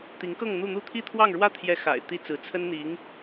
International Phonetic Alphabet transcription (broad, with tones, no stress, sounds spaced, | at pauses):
t̪ i˧˥ ŋ k ɤ˥˧ ŋ n̪ u˥˧ n̪ u˥˩ t̪ʰ i˥ t̪ʰ w ɑ˥˧ ŋ ɻ w ä˥˩ t̪ʰ j ɛ˧˥ x a̰˨˩ ɪ̯ t̪ i˥ t͡s ɹ̩˧˥ t͡sʰ ə˥ n n̪ i˧˥ ŋ